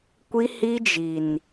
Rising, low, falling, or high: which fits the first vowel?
high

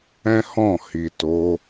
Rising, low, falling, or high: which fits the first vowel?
high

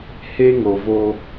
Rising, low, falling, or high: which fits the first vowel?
high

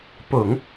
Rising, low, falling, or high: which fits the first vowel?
low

